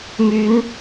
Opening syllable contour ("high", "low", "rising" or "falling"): rising